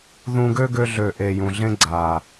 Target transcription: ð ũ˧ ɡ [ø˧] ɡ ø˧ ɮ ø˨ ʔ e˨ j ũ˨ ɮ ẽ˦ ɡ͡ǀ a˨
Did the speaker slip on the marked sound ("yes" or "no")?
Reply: yes